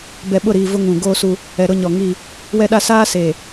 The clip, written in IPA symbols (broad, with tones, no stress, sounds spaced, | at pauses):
b ɛ˨ ɓ ʊ˦˨ ɾ iː˨ v ʊ˦ ŋ ũ˨ ɡ oː˦ s u˦ | ɛ˨ ɾ ʊ˦ ɲ ɔ˨ ŋ i˦˨ | w ɛ˦ ɗ a˦ s aː˦ s eː˨